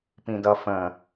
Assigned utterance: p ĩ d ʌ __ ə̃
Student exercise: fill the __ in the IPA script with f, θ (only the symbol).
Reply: f